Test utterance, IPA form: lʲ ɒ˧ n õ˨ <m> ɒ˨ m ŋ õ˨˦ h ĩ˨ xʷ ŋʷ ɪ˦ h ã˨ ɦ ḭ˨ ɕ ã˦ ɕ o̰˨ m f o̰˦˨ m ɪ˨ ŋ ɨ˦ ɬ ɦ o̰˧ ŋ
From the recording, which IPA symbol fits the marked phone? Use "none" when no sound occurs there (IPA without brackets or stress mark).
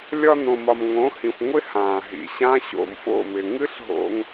m